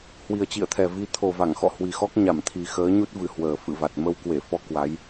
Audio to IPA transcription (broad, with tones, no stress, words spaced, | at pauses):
hwi˨˩ə̯t͡ɕḭ˧˨ə̯t̪ʰɛ˨˩vi˧ t̪ʰo˨˩va˧˩ŋxɔ̰˧˨ hwi˨˩xɔ˦˥k̚ ɲa˧˩mt̪ʰi˨˩xəː˨˦ɲu˦˥t̚ vɨ˨˩hwəː˨˩ fɨ̰˧˨va˨˩t̚ mə˧wkwe˧˩fɔ˧ kwa˨˦j